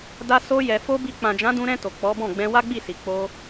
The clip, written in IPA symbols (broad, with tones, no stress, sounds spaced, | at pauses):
d a˧ s o˧ j ɛ˨ f o˧ b i˧ k͡p ã˨ d͡ʒ ã˨˦ d ũ˧ ɾ ɛ̃˧ t o˨ k͡p ɔ˨˦ b ɔ̃˦˨ ɡ͡b ɛ̃˧ w a˦ ɡ͡b i˦˨ s i˨ k͡p o˧